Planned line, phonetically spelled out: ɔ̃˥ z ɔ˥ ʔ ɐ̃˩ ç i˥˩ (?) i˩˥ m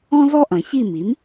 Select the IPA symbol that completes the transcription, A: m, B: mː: A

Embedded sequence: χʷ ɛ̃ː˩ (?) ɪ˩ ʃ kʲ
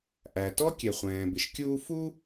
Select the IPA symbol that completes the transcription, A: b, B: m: A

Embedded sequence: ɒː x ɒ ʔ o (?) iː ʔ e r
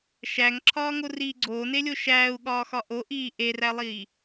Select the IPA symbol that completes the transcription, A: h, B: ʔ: B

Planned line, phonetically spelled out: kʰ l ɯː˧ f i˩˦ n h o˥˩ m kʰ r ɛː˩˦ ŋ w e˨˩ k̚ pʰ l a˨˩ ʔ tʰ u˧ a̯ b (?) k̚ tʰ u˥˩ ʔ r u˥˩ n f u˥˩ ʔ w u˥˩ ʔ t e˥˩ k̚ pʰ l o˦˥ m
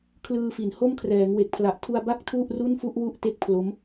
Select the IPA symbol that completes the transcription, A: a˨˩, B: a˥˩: B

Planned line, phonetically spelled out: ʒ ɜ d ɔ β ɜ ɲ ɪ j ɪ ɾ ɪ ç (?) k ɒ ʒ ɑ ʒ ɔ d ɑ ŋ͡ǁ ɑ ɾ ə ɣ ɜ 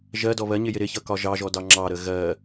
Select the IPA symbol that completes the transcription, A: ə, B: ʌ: B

